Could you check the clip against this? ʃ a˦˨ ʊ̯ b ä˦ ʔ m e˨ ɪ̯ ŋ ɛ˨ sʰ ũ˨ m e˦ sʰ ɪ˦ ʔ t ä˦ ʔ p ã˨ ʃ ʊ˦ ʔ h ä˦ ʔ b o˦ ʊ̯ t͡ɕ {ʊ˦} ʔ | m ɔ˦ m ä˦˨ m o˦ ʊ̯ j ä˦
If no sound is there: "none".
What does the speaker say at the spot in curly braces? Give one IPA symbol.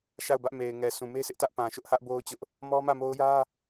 ʊ˦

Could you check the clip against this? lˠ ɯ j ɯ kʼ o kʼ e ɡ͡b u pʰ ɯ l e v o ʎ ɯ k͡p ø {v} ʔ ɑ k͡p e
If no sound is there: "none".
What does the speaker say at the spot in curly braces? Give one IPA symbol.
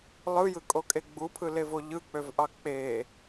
v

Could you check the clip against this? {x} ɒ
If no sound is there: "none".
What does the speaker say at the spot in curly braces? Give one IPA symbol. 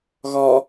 ɣ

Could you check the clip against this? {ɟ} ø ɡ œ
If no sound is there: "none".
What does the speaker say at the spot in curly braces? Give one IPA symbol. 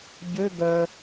ɟ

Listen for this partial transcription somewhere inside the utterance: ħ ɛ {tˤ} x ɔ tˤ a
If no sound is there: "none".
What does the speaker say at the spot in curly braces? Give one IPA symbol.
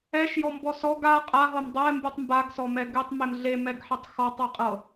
tˤ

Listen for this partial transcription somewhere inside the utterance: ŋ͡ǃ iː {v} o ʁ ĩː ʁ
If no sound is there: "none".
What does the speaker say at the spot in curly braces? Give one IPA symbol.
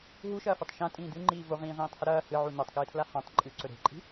v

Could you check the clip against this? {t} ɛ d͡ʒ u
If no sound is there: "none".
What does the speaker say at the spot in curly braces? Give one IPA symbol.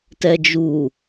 t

